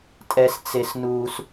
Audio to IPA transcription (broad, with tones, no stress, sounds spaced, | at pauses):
tʼ ɛ˥ s t͡s e˥ s n uː˥ s